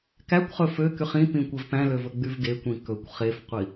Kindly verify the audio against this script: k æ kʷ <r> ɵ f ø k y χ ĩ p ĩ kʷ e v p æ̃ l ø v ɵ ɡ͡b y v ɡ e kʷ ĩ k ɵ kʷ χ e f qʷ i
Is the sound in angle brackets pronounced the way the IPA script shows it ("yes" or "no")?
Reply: no